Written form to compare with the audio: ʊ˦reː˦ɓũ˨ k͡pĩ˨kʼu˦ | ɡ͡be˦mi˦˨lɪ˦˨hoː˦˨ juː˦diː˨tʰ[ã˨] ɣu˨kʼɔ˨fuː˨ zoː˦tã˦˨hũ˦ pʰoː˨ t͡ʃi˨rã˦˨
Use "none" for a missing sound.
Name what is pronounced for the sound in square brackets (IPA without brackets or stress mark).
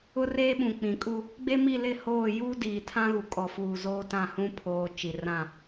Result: ã˦